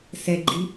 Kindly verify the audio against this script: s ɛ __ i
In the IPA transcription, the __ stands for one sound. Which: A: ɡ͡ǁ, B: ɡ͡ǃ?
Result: B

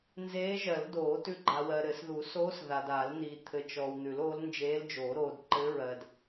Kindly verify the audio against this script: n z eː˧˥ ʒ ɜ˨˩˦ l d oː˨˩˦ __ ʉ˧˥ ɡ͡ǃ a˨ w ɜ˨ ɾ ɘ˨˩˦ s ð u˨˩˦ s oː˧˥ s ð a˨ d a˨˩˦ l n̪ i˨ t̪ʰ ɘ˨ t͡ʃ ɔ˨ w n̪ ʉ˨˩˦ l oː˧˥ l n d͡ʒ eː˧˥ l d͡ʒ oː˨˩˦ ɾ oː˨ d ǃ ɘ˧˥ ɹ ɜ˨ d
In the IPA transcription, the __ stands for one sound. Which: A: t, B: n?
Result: A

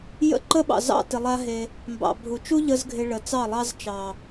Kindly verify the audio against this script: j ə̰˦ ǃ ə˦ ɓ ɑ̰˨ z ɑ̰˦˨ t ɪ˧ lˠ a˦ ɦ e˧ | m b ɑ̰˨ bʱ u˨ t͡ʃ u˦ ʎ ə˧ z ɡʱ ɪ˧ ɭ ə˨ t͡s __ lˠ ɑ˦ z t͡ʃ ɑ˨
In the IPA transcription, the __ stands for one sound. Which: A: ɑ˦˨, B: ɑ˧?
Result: A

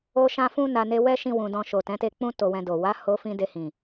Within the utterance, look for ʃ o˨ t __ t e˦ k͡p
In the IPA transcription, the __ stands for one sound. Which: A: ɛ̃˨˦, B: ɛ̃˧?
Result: A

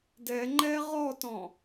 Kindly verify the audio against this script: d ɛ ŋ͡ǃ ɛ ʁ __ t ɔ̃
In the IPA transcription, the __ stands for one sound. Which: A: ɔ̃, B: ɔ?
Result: B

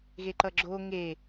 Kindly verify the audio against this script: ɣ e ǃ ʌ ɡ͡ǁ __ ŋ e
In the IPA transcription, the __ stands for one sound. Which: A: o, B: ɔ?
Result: A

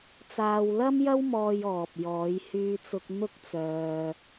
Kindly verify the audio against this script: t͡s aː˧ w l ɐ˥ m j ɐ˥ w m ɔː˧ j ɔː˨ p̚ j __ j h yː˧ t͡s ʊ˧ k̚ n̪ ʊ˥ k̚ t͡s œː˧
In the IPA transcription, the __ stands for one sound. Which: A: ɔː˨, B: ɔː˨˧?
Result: B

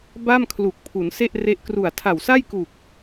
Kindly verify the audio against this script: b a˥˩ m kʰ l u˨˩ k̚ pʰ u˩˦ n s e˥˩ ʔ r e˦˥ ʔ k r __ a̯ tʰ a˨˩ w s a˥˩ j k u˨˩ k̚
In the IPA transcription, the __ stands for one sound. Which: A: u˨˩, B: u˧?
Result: A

